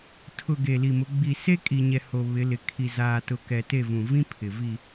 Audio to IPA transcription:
tʰ ʊ˨ ɡ e˨ l i˨ m ʊ˨˦ ɡ͡b i˨ s e˦ kʼ i˨ ɲ ɛ˨ h o˨ β ɪ˨˦ l ɪ˨ kʰ i˨ z aː˨ t ʊ˨ k ɛ˨ t e˦˨ v ũ˨ v ĩ˦ pʰ ɪ˨ v i˨

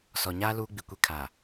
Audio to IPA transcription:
s ɔ˨ ɲ aː˦ l uː˦ ɡ͡b i˨ kʷ e˦ kʰ aː˨

